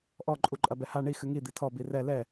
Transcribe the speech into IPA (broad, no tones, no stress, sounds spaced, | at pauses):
ʔ ɔ ǃʼ u ǃʼ ɐ b ɛ h a ɳ i x ɨ ŋ i d̪ i tʰ ɔ b i r ɛ l ɛ